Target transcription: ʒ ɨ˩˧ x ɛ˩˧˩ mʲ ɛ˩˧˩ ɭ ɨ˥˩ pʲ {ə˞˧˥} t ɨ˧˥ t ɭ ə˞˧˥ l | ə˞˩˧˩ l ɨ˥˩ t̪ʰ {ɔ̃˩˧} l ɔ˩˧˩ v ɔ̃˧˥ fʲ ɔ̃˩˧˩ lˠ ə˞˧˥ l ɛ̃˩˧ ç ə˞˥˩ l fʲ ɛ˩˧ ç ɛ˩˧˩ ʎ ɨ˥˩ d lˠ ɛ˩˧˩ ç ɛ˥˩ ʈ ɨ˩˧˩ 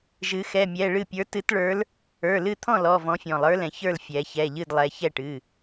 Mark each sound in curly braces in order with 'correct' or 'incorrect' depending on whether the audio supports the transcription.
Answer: correct, incorrect: ɔ̃˥˩

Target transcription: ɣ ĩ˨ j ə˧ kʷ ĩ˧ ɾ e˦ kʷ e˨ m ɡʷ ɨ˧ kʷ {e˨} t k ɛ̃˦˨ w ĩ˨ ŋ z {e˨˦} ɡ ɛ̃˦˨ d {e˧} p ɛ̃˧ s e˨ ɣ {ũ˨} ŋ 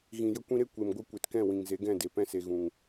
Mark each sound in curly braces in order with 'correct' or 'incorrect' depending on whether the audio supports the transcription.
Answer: correct, correct, incorrect: e˨, correct

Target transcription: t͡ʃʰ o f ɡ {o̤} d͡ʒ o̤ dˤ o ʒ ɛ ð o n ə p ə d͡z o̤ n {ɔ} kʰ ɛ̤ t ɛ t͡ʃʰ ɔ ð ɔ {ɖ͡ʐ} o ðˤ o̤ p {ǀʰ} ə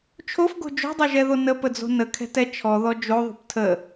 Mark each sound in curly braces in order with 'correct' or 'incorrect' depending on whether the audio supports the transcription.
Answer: correct, incorrect: ə, incorrect: d͡ʒ, incorrect: tʰ

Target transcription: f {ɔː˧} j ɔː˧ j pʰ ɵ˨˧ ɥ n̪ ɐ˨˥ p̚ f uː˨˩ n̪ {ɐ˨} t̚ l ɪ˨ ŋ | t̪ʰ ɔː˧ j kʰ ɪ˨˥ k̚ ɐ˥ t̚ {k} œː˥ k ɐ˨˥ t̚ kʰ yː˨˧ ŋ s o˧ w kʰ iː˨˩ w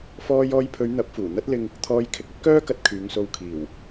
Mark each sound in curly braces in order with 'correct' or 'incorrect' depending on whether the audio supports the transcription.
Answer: correct, incorrect: ɐ˧, correct

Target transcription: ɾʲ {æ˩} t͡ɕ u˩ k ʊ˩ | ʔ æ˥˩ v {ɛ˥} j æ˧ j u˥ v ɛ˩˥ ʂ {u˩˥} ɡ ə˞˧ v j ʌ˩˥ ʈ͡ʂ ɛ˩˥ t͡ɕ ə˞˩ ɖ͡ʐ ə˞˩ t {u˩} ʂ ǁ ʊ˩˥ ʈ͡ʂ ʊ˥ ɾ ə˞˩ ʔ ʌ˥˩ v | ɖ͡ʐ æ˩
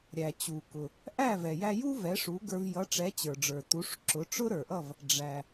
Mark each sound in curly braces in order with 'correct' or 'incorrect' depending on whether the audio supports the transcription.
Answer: correct, incorrect: ɛ˩, correct, incorrect: u˩˥

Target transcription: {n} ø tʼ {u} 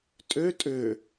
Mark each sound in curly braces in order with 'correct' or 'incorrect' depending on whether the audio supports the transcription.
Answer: incorrect: tʼ, incorrect: ø

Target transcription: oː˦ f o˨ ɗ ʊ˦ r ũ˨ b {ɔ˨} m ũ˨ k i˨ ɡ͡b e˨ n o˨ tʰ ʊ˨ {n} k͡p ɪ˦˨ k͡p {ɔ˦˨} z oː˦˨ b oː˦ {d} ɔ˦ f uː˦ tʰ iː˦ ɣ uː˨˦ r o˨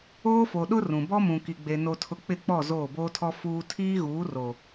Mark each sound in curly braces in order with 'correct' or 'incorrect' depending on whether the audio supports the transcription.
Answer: incorrect: ɔ˦, incorrect: none, correct, incorrect: tʰ

